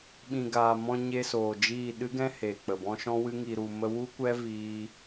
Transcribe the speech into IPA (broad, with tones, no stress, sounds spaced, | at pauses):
ɓ ĩ˨ ɡ aː˨ m ɔ̃˧ ɲ e˧ s oː˨ d͡ʒ iː˦˨ ɗ ɨ˦ ɡ ɛ̃˦ h e˨ k͡p ə˨ b ɔ̃˦ ʃ ɔ̃˦ w ɨ˦ ŋ i˧ ɾ u˧ m ə˧ w u˦ kʷ ɛ˦ v iː˦